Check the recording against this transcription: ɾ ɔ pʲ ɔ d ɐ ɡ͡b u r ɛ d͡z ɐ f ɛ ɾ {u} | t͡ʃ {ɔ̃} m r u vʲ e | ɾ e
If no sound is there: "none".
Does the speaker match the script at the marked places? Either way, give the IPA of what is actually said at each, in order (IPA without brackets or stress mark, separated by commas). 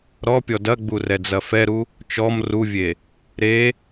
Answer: u, ɔ